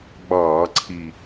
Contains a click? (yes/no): yes